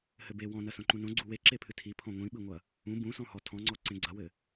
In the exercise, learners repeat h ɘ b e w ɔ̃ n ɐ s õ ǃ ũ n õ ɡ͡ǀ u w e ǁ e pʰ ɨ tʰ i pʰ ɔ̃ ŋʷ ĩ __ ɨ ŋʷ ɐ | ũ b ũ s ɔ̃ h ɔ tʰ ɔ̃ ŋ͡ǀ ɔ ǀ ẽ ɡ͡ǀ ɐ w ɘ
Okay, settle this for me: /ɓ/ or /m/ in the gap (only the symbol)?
ɓ